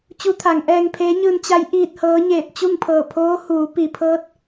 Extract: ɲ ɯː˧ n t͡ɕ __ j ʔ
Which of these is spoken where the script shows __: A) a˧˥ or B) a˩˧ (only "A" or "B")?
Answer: A